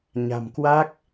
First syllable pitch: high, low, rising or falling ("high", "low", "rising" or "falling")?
low